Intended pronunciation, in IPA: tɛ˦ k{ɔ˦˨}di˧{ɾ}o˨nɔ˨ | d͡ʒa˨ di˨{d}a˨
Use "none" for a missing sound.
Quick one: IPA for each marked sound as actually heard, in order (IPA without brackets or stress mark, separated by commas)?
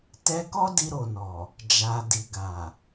ɔ˦, ɾ, ɡ